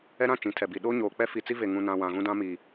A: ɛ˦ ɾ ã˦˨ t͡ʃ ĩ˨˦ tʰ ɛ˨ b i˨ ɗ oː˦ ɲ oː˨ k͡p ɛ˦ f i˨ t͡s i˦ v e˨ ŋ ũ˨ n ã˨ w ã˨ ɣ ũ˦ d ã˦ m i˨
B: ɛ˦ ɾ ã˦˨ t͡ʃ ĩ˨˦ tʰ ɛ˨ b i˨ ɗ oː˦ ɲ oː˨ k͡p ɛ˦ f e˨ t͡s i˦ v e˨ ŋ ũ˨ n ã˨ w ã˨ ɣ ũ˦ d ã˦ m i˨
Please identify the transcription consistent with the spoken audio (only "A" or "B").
A